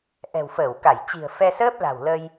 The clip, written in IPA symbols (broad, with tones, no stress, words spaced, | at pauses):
ʔɛ̤˨˩wfəː˧˩wka˧˩j t͡ɕi̤˨˩ə̯fɛ˧səː˦˥p̚la̤˨˩w lə˧j